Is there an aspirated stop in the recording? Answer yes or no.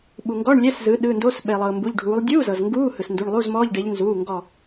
no